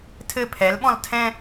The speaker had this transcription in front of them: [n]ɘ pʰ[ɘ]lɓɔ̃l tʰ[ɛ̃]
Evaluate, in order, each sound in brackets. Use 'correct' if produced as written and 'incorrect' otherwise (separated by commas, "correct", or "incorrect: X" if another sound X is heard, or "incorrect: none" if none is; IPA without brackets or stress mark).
incorrect: tʰ, incorrect: ɛ, correct